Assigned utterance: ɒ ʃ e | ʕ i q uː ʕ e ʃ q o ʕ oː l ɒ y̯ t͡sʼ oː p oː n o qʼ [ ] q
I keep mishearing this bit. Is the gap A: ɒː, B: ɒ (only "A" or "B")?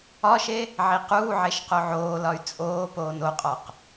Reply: B